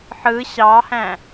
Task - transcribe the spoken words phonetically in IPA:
ħ ɯ ɕ ɑ h æ̃

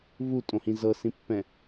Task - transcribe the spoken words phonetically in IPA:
β u tʼ õ h ĩ z ɤ s ĩ pː ɛ̃

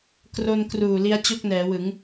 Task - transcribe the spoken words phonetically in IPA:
k r o˧ n k r uː˨˩ l i˦˥ a̯ t͡ɕ o˥˩ k̚ n ɛː˩˦ w ɯ˩˦ ŋ

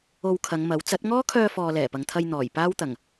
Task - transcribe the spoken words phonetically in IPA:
o˧ w kʰ ɐ˨˧ ŋ m ɐ˨˥ w t͡s ɐ˨˥ t̚ ŋ ɔː˥ kʰ œː˧ f ɔː˨ l ɛː˨˩ p ɐ˨ ŋ t̪ʰ ɐ˧ j n̪ ɔː˨˩ j p aː˥ w t̪ ɐ˨˩ ŋ

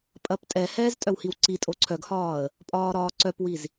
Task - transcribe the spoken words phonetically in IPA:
pʼ ɐ p tʼ ɛ h ɛː z tʼ œ w h i w ǀ i tʼ o ǀʰ œ ɡ h ɒː ə̯ | pʼ ɒː ɾ ɒː ǀ œ p w i z

